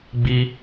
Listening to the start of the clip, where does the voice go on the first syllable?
high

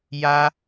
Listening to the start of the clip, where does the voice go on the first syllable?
high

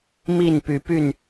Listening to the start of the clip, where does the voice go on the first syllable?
falling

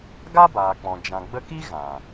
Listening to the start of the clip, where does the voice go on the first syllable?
high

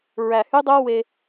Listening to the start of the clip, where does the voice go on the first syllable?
low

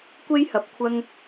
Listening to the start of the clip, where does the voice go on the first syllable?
high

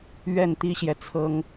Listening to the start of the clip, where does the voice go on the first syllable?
falling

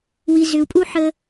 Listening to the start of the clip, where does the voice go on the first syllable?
low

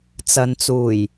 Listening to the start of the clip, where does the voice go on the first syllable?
low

